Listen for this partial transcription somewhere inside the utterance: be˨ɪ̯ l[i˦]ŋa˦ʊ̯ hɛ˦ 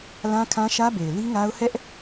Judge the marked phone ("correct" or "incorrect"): correct